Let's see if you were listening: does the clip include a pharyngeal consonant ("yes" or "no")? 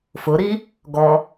no